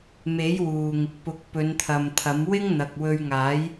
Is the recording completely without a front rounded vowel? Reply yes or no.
yes